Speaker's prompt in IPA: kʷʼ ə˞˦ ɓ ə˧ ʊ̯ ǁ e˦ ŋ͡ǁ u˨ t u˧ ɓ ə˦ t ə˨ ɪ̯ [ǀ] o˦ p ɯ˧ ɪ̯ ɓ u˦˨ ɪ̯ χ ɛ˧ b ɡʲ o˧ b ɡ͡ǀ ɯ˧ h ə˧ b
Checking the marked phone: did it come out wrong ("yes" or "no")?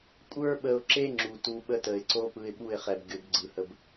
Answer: no